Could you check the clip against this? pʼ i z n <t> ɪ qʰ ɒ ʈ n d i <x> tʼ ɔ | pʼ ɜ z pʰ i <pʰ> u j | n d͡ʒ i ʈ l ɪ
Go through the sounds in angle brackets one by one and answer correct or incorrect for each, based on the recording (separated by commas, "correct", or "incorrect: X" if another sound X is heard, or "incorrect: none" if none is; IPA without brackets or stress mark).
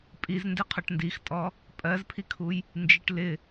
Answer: incorrect: d, correct, incorrect: kʰ